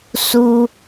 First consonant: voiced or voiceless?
voiceless